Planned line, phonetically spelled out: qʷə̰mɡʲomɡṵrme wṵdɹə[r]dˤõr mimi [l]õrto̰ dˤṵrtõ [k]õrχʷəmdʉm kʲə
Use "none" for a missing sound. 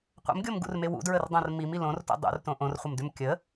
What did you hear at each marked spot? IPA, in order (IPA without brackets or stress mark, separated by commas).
r, l, ʔ